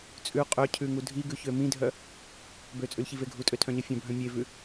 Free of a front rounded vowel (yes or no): no